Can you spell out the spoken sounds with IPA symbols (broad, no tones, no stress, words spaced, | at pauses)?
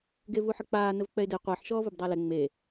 ɡevuħək͡paː nəvk͡pɛɪ̯de qʷəːħ ʃɔːvobdˤalɛ ŋ͡me